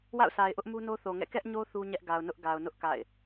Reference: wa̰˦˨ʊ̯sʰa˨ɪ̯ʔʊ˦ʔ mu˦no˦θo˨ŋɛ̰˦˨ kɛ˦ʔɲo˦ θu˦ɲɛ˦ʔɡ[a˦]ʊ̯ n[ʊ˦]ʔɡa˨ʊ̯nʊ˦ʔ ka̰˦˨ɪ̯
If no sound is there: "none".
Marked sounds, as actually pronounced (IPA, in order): a˨, ʊ˦

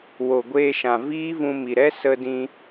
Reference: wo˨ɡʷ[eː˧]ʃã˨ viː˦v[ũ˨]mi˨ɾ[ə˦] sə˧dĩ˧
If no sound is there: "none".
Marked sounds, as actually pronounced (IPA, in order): eː˧, ũ˧, ɛ˦

